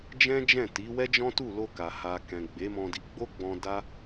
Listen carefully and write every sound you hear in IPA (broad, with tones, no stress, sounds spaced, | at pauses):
d͡ʒ ɛ̃˦ d͡ʒ ɛ̃˦˨ t i˨˦ w ɛ˦ d͡ʒ ɔ̃˦ t u˦˨ l o˧ k a˨ h a˨ k ɛ̃˨ ɡ͡b e˨˦ m ɔ̃˧ d i˧ ɡ͡b o˦ ɡ͡b ɔ̃˧ d a˦